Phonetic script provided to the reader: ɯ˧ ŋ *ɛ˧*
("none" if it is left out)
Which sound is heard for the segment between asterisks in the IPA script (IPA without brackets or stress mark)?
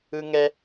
ɛ˧